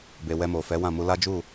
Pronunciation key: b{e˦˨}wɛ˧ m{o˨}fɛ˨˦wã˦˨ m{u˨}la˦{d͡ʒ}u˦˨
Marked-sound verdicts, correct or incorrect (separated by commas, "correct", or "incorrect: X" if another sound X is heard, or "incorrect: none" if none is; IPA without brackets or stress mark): incorrect: e˨, correct, incorrect: u˧, correct